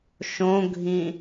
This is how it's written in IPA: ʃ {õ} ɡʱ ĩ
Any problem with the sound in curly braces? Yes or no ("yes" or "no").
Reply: no